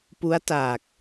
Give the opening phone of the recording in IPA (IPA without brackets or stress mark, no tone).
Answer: p